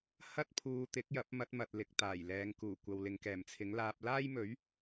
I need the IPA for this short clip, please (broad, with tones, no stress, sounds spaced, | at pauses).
h ɐ˥ t̚ pʰ uː˧ t̪ ɪ˨˥ k̚ j ɐ˨˥ p̚ m ɐ˧ t̚ m ɐ˨ t̚ l ɪ˨˥ k̚ t̪ aː˨˩ j l ɛː˨˧ ŋ k uː˨˩ kʷ ɐ˨ w l ɪ˨ ŋ k ɛː˨˩ m t͡sʰ ɪ˨˥ ŋ l aː˧ p̚ l aː˥ j m ɵ˨˥ ɥ